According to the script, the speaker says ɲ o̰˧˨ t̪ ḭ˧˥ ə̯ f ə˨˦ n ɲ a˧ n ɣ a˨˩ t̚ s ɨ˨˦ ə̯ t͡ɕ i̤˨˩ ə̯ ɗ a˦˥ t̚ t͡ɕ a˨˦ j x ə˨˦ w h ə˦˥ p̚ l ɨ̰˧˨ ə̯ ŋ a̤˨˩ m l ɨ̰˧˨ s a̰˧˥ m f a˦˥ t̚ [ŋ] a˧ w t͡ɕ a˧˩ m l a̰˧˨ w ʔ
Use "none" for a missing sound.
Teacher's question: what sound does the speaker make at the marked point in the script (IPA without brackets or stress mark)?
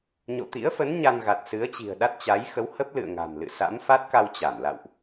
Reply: k